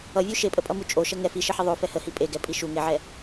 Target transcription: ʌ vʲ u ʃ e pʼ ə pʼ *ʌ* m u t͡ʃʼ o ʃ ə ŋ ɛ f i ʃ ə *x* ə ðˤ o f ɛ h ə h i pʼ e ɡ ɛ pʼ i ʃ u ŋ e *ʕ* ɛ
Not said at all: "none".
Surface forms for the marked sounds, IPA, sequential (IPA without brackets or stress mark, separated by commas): ʌ, ħ, ʕ